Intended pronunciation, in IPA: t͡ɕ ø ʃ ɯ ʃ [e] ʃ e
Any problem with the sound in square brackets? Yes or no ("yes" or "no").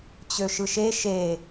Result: no